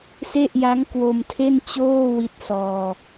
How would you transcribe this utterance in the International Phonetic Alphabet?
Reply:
s e˥˩ ʔ j a˦˥ ŋ k w o˧ m tʰ e˥˩ n t͡ɕ oː˥˩ w i˦˥ t̚ s ɔː˧

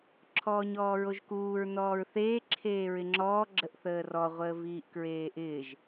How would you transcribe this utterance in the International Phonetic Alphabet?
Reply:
ǁʰ ɔː ɲ ɔː ɹ o ʒ k uː ɹ n ɔː ɹ θ eː ǁʰ eː ɹ ɪ ŋ͡ǁ ɔː ɡ͡ǁ ə ʔ θ əː r ɔ ʁʷ əː v iː ʔ k ɹ eː ʔ ɪː ʒ

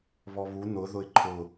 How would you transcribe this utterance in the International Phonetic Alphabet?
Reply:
β ɔ β u n ʊ ð ʊ ɪ̯ ǃʰ ʊ

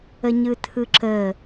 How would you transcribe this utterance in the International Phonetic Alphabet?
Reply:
ə ɲ ɯ tʰ ɯ ǁ ə

